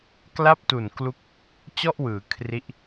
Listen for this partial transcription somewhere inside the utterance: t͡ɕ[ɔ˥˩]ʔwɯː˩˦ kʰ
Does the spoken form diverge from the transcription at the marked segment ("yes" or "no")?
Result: no